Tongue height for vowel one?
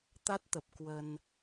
low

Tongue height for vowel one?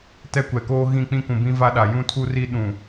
mid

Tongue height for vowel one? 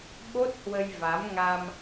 mid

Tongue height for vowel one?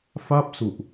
low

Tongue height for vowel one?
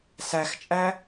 low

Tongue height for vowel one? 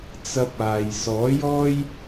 low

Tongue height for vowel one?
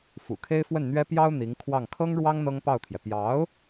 high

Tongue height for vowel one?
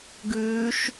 high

